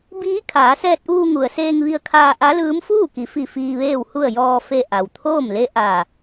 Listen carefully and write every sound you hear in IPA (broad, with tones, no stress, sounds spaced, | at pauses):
b iː˧˥ kʰ aː˩˧ s ɛː˧ t̚ ʔ uː˧ ŋ u˩ ə̯ s eː˧ ŋ ʋ i˧ ə̯ kʰ aː˧ ʔ a˧˥ l ɯː˧˥ m f uː˥˨ k i˩˧ f i˧˩ f iː˧ ʋ eː˥˨ w h u˥˨ ə̯ j ɔː˧ f e˧ ʔ a˩ w t̪ʰ oː˥˨ m l e˧˥ ʔ a˧˩